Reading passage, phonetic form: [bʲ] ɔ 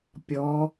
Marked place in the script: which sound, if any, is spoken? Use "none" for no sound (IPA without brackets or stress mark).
pʲ